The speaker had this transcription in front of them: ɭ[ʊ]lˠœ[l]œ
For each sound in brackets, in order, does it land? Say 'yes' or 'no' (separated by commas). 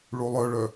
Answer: no, no